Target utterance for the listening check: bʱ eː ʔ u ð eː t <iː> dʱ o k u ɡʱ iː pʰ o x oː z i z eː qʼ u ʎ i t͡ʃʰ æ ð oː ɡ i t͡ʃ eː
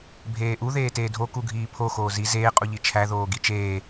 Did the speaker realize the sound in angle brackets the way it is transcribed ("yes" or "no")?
no